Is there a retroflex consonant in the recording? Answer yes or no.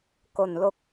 no